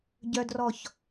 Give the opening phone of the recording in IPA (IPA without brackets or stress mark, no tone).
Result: ɟ